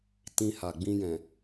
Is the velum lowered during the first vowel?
yes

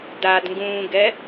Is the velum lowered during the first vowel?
no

